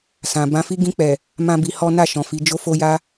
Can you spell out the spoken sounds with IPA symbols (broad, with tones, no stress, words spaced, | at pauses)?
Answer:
sã˨ bã˧fi˦ ɡĩ˧k͡pɛ˨ | mã˦bi˧hɔ˦ na˦˨ʃɔ̃˨fi˨˦d͡ʒo˦ fo˦ja˦